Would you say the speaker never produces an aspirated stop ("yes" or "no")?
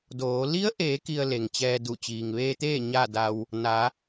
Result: yes